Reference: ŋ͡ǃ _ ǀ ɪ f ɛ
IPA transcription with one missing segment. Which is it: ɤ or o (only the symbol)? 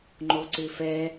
o